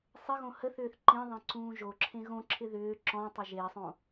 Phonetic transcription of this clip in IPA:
sˤɪɣõ həθʏːθ ǃĩðˤẽ ǀũːʒoǁʰẽ ɣõǁʰɪ ðʏː ǁɔ̃tˤə ʒesˤõ

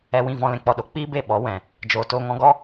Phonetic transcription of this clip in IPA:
ɛ˧wĩ˦˨vɔ̃˧ lɛ̃˧k͡pɔ˧ɗo˨ k͡piː˦be˦˨ ɓɔ˨˦ wɛ̃˨ | d͡ʒoː˨ toː˧ŋɔ̃˧ɡɔ˦

